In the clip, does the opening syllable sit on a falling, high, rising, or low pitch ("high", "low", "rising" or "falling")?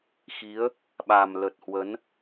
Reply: rising